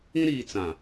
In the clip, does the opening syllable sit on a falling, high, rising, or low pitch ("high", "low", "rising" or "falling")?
high